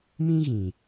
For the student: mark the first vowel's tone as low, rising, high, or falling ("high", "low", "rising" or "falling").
high